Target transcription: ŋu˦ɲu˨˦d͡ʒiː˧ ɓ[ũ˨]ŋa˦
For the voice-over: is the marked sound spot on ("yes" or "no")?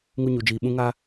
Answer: no